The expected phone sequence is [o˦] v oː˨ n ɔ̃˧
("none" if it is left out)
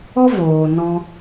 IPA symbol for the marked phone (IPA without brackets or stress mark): ɔ˦